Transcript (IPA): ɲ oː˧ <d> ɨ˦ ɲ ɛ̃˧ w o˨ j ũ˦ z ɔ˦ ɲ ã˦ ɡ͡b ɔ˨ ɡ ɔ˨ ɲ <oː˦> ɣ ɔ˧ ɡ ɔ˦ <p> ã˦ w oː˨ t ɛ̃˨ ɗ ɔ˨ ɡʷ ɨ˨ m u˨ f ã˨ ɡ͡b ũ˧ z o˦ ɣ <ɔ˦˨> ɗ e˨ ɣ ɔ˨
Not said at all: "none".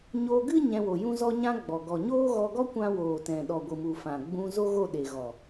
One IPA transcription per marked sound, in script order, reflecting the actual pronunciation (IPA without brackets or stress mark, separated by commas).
ɡ, oː˦, kʷ, o˦˨